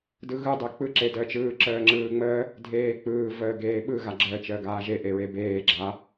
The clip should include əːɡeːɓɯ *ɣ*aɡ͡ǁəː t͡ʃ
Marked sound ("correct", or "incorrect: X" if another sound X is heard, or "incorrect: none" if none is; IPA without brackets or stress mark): correct